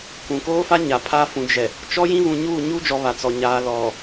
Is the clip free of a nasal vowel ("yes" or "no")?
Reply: no